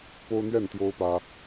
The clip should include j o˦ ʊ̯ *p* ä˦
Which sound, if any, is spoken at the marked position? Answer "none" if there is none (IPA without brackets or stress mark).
p